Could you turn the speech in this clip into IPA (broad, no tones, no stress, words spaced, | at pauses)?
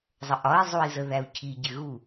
zˤəʔɒi̯ zˤui̯zəðæu̯cʰi ɟɪɣu